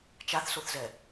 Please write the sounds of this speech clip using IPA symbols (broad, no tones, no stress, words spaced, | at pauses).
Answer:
t͡ʃaθsoθzɛ